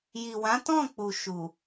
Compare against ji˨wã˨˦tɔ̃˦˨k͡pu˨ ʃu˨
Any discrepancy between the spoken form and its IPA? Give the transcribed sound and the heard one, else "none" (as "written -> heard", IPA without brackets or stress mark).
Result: none